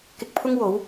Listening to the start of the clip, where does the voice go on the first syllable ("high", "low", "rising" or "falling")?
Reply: low